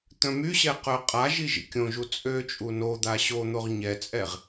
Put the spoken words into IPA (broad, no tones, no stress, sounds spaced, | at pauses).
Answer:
t̪ œ̃ m y ɕ ɛ q œ qʼ a ʒ i ʒ ḭ kʲ õ ʒ u t͡sʼ ø t͡ʃʼ u n o d̪ a ɕ o n̪ o ʁ ɲ ɛ t͡sʼ ɛ ʁ